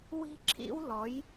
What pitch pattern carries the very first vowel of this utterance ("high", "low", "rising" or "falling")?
high